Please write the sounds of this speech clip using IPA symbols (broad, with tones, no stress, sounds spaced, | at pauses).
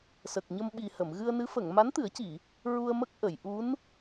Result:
s ə˨˩ k̚ ɲ ə˧ m ɓ i˨˩ h ə˨˩˨ m ɣ ɨ˧ ə̯ n ɨ˧˥ f ə˨˩˨ ŋ m a˧˥ n t̪ ɨ˨˩˦ ə̯ c i˨˩˨ | ɹ u˧ ə̯ m ə˦˥ k̚ ʔ ə˨˩˨ j ʔ u˧˥ n